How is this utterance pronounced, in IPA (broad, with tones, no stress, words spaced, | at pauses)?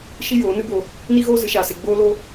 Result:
ʃi˦joː˨˦nɨ˦bo˧ | ni˦ɣoː˦ zɨ˨˦ʃaː˧se˧ ɡ͡boː˦lo˦